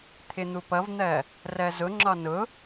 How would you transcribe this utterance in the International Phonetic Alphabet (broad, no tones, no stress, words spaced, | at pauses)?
t̪ʰɪn̪upʌvn̪ɜ | rɜzʊŋ͡ǁɒ nʊ